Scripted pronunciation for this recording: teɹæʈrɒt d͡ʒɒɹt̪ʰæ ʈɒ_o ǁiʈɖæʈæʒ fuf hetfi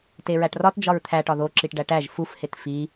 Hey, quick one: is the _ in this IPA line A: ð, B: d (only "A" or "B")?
A